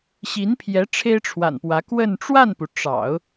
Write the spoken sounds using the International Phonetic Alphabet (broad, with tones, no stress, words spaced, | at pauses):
ɕi˧˥npʰjɛ˧˥ ʈ͡ʂʰe˥ɪ̯ʈ͡ʂʰwa̰˨˩npwä˧˥ kwə˥˧n ʈ͡ʂwa˥˩npu˩ ʈ͡ʂɑ̰˨˩˦ʊ̯